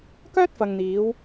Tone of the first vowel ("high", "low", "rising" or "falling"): high